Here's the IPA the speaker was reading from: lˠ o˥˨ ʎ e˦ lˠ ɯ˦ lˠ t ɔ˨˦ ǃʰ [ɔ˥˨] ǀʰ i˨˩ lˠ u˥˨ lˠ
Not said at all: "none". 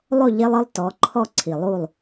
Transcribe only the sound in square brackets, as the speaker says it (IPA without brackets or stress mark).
ɔ˥˨